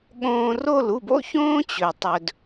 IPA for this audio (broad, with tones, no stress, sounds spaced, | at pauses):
ɠ õː˧ r o˦˨ l u˦˨ b o̰˦ ç õː˦ t͡ɕ ɵ˨ tˤ ɵ˨ d